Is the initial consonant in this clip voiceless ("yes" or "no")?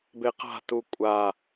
no